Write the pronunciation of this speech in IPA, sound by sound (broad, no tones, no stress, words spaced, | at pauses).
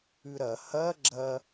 ʉɾɐ hɐ ɡ͡ǁɐ